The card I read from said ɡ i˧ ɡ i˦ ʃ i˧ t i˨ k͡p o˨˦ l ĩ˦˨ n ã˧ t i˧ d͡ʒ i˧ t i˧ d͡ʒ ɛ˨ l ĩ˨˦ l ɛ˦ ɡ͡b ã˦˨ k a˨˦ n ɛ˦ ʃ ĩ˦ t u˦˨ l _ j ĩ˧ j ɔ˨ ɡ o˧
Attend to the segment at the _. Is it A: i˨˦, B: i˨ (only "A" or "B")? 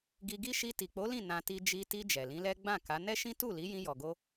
A